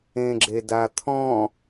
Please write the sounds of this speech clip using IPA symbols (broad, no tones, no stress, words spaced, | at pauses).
ẽɡ͡ǁedat̪ʰɔ̃